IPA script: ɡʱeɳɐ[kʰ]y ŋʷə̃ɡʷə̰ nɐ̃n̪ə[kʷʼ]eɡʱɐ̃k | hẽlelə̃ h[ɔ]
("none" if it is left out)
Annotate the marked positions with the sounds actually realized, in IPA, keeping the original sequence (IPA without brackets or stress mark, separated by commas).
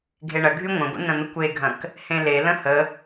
ɡʱ, kʷ, ə